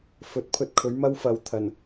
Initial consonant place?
labial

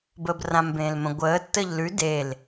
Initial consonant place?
labial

